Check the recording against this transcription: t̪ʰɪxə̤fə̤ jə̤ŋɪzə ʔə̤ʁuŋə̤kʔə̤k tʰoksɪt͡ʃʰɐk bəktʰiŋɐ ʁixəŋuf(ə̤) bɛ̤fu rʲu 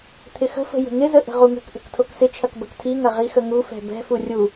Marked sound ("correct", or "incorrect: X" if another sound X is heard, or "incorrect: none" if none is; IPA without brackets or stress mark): incorrect: ɛ̤